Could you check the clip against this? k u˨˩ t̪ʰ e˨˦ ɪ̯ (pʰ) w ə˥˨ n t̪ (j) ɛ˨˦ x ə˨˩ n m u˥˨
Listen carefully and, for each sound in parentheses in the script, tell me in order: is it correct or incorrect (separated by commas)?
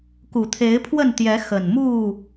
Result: correct, correct